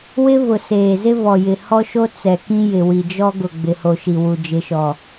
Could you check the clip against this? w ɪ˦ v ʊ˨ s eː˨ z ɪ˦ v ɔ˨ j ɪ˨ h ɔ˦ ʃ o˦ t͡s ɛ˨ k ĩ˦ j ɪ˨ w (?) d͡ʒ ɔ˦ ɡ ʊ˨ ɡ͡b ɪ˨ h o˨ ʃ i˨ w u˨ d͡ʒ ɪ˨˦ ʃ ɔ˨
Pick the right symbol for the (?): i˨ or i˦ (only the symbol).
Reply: i˨